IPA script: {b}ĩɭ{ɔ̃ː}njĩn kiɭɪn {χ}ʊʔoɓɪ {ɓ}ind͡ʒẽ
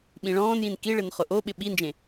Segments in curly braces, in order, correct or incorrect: incorrect: ɓ, correct, correct, correct

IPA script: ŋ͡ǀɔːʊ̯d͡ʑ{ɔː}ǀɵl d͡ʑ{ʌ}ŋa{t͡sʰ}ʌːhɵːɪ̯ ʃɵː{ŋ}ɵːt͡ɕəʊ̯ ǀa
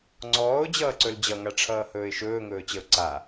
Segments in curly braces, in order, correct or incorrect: incorrect: ʌː, correct, incorrect: ʈ͡ʂʰ, correct

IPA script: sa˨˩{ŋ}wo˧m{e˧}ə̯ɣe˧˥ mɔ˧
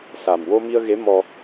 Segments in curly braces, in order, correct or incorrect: incorrect: m, incorrect: i˧

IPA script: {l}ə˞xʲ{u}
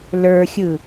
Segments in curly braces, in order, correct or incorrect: correct, incorrect: ɯ

